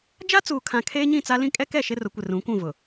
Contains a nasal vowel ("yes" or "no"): yes